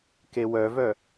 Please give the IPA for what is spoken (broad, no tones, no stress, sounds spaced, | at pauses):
k e w œ v œ